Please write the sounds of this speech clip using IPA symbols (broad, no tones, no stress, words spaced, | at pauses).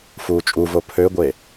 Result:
fuːt͡ʃʼuvo pʰøɡʷe